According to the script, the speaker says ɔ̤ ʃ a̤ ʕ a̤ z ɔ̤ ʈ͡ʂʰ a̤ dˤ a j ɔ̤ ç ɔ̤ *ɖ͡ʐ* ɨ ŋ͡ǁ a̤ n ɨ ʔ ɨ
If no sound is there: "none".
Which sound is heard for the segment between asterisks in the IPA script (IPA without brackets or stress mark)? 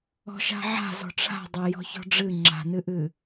ɖ͡ʐ